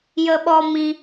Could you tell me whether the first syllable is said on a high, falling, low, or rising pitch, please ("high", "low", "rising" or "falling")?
high